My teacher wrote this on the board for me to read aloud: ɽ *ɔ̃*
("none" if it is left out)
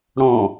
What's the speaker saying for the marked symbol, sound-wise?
ɔ̃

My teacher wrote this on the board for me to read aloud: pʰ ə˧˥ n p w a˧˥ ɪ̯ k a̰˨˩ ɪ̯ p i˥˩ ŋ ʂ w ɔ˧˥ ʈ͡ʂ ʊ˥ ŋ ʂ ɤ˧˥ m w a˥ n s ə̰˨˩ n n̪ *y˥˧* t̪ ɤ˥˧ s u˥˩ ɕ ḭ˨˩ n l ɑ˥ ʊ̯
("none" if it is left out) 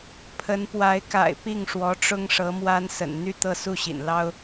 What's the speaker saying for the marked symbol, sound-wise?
y˥˧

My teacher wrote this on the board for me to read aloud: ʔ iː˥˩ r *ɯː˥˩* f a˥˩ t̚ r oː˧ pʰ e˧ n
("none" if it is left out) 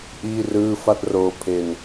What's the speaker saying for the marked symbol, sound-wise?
ɯː˥˩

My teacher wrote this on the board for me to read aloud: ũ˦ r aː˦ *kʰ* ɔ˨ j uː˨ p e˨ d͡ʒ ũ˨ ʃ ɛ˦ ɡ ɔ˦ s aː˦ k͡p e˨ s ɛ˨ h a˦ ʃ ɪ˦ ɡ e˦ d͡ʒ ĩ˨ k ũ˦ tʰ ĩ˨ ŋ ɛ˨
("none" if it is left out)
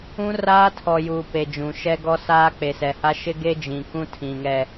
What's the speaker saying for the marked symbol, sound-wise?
tʰ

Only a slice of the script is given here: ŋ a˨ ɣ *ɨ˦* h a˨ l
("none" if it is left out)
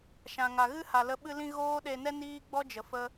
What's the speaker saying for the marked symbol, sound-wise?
ɨ˦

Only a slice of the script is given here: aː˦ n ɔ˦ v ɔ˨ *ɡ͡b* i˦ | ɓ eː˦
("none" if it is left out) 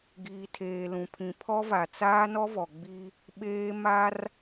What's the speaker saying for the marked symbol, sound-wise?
ɡ͡b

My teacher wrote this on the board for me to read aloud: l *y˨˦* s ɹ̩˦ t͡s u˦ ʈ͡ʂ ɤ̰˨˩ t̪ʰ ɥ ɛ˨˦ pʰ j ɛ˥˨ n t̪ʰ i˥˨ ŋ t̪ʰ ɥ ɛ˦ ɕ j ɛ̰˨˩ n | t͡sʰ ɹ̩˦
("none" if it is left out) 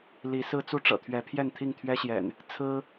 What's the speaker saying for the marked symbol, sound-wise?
i˨˦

